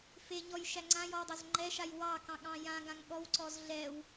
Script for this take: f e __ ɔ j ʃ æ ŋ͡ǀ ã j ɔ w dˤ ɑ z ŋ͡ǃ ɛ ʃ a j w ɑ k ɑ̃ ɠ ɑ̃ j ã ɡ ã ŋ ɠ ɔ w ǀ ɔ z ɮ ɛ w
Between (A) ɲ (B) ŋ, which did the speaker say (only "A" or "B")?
A